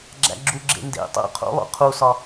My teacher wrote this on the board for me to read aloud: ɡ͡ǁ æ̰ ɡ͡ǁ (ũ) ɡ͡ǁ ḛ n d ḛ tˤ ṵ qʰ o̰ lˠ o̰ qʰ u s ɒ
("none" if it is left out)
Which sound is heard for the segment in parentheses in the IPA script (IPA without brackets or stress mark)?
u